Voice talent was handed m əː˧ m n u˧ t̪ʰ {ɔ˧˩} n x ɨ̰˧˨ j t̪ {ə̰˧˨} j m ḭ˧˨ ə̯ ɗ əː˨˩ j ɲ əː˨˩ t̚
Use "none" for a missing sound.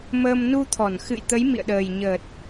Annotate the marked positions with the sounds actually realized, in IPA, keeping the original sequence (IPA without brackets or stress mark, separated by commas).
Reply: ɔ˧˩, ə˨˦